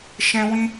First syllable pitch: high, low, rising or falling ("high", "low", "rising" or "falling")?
high